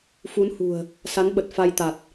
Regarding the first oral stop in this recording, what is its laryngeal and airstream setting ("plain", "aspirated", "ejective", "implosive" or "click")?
implosive